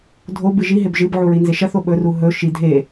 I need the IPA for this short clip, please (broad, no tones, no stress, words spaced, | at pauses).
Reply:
dʱobɨ ʒiɦeb ʒɨbʕuɹinze ʃɐθo ɓɵru ɦɵ ʃi dʱe